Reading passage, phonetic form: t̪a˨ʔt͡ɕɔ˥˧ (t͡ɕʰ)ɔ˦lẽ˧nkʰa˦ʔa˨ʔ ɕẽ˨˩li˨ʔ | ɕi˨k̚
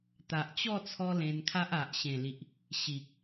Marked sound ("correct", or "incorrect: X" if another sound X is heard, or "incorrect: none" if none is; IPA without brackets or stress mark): incorrect: t͡sʰ